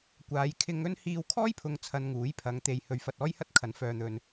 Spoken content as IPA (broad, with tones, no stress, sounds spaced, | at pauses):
kʷ aː˨˧ j kʰ ɪ˧ ŋ ɵ˥ n h iː˧ w kʰ ɔː˥ j pʰ ʊ˨˧ ŋ t͡sʰ ɐ˧ n ŋ uː˨˥ j pʰ ɐ˨˧ ŋ t̪ e˨ j h ɵ˨ ɥ f ɐ˧ t̚ ɔː˥ j h ɐ˥ t̚ kʰ ɐ˨˥ n f œː˨ n̪ ɵ˨ n